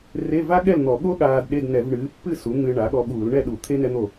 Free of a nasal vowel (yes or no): yes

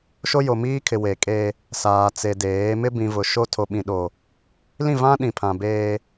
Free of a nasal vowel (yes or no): no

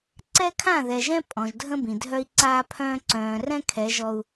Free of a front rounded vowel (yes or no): no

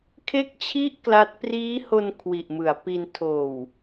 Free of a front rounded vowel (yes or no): yes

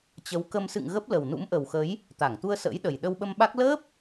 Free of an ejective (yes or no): yes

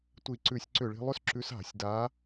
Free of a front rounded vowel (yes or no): no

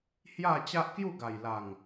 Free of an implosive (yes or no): yes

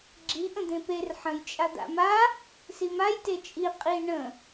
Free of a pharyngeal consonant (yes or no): no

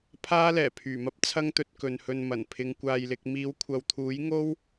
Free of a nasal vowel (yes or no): yes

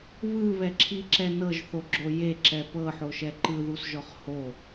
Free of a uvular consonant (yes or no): no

